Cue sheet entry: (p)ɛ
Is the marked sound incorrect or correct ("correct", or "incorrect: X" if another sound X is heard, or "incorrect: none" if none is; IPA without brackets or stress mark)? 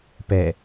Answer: correct